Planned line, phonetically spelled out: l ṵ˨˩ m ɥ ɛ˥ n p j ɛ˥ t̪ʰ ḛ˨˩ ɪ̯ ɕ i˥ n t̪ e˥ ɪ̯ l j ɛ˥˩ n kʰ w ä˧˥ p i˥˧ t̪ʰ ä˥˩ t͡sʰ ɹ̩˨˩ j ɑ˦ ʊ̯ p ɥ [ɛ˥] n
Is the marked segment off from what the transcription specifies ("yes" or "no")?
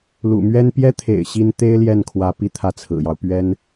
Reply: no